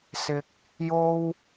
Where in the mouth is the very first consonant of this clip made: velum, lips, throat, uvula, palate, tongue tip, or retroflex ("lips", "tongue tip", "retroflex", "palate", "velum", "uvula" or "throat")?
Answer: tongue tip